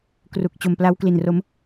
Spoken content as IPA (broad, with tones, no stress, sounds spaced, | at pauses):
k r u˨˩ k̚ t͡ɕ o˨˩ m p l a˦˥ w k l i˨˩ n r o˦˥ m